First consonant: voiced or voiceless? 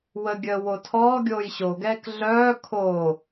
voiced